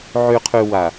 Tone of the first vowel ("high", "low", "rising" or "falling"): low